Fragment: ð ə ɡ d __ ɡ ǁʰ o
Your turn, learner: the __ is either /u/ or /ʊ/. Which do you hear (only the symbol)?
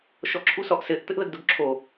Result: ʊ